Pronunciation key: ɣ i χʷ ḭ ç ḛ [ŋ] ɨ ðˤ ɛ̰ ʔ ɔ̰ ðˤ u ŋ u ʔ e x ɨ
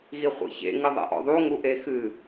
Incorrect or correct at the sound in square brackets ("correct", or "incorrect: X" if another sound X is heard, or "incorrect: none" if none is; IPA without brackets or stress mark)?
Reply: correct